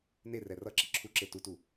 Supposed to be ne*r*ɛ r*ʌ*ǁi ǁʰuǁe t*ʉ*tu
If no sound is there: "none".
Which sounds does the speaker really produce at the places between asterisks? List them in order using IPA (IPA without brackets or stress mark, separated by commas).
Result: r, ʌ, u